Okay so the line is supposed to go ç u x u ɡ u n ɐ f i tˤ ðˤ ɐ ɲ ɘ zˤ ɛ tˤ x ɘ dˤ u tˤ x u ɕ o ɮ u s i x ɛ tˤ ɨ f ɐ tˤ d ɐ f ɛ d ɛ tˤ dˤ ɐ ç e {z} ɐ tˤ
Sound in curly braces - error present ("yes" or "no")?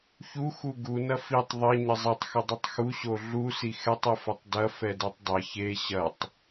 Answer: yes